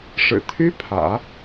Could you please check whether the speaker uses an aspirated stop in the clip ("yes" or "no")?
yes